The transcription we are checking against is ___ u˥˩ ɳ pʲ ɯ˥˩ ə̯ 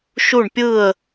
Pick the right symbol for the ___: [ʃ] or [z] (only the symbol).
ʃ